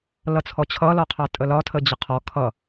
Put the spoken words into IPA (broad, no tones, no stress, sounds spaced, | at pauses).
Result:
l ʌ t͡sʰ ɔ t͡ɕʰ ʌ l ɔ qʰ ɑ tʼ ə l ɒ tʰ ə d͡ʑ ə qʰ ɔ kʰ ʌ